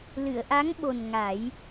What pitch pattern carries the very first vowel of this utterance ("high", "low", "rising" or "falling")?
low